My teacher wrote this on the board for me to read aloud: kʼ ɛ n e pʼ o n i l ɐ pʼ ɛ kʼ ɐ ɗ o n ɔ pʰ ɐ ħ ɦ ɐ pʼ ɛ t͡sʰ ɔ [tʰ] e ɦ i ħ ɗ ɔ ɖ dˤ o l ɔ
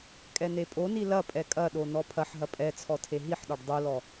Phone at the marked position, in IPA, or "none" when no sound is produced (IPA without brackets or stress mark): tʰ